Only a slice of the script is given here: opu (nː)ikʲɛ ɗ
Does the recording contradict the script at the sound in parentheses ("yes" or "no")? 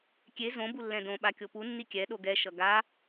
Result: no